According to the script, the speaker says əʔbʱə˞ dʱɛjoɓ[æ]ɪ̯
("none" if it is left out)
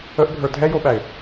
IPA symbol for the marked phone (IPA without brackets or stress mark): æ